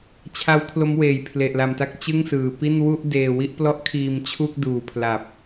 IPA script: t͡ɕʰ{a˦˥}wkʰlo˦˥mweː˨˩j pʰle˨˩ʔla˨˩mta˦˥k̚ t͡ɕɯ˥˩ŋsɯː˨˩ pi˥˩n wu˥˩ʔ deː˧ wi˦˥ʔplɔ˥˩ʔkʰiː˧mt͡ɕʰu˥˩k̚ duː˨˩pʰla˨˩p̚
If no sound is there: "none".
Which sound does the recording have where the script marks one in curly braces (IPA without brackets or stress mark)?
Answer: a˦˥